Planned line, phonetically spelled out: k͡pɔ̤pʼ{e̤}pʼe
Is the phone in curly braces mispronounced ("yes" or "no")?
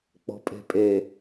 no